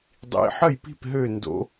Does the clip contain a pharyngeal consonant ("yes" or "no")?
yes